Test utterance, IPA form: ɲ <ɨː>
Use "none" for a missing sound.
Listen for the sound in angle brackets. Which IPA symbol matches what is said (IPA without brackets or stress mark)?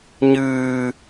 ɨː